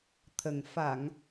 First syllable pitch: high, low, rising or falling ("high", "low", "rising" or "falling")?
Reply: low